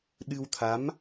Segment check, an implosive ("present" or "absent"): present